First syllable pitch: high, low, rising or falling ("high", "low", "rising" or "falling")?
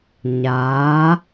rising